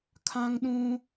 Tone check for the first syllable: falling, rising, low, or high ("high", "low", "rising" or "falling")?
high